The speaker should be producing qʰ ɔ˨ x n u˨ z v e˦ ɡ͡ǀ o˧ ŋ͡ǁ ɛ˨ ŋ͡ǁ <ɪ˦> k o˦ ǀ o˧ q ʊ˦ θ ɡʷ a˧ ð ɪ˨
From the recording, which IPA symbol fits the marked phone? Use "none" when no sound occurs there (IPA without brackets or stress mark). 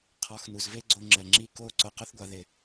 i˦